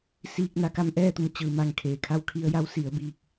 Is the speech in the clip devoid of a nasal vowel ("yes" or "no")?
yes